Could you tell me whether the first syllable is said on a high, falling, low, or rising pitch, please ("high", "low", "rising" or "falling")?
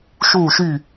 falling